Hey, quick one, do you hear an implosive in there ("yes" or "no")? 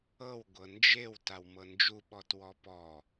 yes